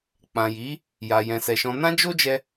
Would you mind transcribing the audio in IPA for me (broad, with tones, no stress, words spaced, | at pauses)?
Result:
k͡pã˨ji˨˦ | ja˨jɛ̃˨sɛ˨ʃɔ̃˧ nã˦d͡ʒo˦d͡ʒɛ˧